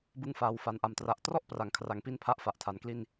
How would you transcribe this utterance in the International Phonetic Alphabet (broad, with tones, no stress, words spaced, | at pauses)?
bɯ˧ŋfaː˨˩wfa˨˩n ʔa˨˩mtra˨˩ʔ trɔ˥˩ʔpra˩˦ŋkʰra˨˩ŋpi˦˥n pʰa˥˩ʔ fa˨˩ʔtʰa˨˩n kli˥˩n